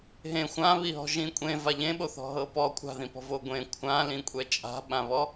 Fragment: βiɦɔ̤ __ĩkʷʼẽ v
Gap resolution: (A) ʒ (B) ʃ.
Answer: A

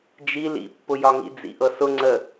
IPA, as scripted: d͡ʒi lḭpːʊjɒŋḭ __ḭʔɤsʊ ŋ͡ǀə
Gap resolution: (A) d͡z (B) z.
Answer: A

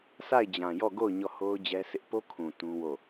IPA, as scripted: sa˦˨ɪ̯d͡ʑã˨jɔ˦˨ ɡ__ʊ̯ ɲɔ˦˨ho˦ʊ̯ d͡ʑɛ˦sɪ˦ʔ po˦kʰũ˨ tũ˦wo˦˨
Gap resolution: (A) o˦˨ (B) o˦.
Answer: A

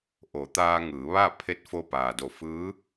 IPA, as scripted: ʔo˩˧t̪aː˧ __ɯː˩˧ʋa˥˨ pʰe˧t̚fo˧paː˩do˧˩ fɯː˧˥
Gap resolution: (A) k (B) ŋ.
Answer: B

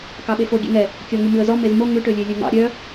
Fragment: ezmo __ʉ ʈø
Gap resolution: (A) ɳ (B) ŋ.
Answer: B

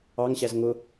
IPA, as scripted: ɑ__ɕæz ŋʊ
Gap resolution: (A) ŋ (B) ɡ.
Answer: A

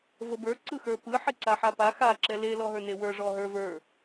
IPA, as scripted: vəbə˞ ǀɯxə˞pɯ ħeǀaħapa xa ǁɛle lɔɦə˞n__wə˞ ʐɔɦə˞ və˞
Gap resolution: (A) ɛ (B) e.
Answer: B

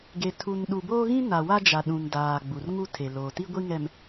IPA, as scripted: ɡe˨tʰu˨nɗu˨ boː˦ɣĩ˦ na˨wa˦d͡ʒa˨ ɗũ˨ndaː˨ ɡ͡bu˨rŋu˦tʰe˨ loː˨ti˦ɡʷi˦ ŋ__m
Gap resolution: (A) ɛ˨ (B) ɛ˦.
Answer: A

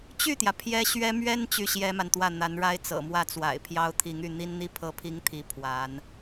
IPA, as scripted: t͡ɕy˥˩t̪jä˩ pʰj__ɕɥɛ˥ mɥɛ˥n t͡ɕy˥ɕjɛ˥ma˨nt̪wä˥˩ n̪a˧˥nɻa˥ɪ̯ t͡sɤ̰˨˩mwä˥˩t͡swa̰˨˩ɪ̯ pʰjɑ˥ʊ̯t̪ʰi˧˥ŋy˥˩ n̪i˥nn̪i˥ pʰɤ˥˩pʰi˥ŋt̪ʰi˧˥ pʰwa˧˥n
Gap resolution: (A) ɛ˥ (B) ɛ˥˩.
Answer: A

